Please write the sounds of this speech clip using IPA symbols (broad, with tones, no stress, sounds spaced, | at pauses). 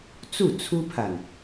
t͡s u˥˩ t͡sʰ u˥ pʰ a˨ n